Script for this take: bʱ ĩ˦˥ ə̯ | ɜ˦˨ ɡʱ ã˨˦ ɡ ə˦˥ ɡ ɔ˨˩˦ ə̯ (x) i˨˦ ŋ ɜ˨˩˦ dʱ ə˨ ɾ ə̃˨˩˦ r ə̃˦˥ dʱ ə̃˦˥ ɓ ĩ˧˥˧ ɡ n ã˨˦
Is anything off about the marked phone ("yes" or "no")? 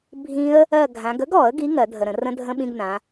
yes